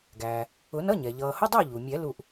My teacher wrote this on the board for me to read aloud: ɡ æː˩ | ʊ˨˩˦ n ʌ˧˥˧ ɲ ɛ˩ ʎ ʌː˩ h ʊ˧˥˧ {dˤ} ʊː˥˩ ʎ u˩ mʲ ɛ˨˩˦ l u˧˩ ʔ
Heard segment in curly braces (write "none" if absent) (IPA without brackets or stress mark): dˤ